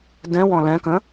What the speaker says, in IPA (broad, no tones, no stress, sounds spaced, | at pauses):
d ɛ̃ w ɔ̃ l ɛ̃ k ə̃